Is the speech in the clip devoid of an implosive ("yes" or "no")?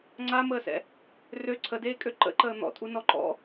yes